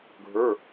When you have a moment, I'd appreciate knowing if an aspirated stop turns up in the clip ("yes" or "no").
no